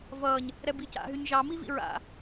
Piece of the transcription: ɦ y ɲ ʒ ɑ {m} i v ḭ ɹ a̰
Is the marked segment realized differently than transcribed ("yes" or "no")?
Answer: no